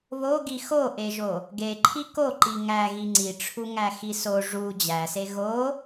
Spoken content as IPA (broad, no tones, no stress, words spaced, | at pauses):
βoɡi xoʔeʒo | ɡeǃʰi koǃi ŋæɣi ŋ͡ǀiʈ͡ʂʰuŋæ xiso ʐu d͡ʑæse ɣo